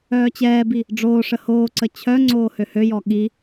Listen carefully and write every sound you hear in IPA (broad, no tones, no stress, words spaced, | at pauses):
œːt͡ɕɛːbi | ɖ͡ʐoːʂə hoːǀə t͡ɕʰœŋ͡ǀoː høhøjɔ ɠi